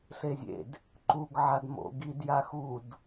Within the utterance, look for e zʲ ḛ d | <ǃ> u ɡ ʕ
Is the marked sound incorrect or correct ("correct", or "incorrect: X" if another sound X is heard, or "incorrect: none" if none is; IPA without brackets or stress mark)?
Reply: correct